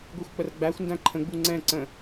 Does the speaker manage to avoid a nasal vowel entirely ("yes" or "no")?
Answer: no